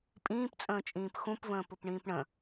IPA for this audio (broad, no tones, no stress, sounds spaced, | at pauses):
pʼ ĩː p t͡sʼ ə̃ː t͡ʃʼ ĩː p x ũ p v ə̃ː p ʊ p ɳ ĩː p ɳ ə̃